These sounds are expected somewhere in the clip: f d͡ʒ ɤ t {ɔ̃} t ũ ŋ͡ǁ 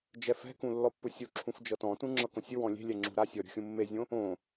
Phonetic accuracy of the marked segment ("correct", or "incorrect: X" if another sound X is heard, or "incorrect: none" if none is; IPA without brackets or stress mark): correct